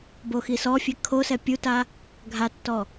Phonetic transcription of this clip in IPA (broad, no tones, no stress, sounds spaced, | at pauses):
b o x i s ɔ fʲ ɛ kʰ o s ɛ pʲ u t a | ɡʱ a tː ɔ